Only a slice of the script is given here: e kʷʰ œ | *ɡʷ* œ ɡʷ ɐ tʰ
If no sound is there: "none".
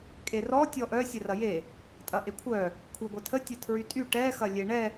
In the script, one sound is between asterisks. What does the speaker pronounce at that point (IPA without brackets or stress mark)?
kʷʰ